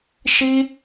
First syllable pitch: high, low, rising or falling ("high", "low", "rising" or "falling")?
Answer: high